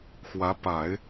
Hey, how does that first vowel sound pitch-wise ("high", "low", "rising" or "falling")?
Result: rising